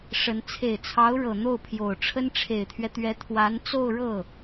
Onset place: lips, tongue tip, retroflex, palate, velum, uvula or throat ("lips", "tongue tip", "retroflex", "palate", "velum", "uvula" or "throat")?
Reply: retroflex